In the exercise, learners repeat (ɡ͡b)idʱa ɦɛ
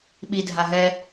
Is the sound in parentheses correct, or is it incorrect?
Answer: incorrect